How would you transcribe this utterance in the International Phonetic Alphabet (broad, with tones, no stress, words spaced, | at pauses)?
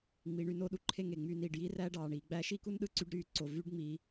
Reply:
ŋ͡mi˧ɳy˥˧no˥˧ ɗu˧ǃʰe˥˧ ŋe˧˩ŋ͡myː˧niː˧˩ɖ jiː˥ræː˥ɖɑː˧˩ ɳiː˩˧ɡ͡bæː˥ ʃi˥ku˥nɗɯ˥ ǀy˥ɖɾyː˥˧ǀo˧˩ vyː˥ɖŋ͡miː˧